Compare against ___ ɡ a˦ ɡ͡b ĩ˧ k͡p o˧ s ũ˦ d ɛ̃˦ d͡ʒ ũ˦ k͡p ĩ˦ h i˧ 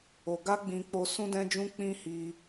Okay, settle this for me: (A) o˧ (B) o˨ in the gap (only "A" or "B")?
A